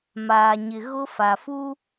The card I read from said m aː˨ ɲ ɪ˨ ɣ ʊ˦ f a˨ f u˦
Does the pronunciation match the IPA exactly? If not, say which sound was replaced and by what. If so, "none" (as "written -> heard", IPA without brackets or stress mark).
none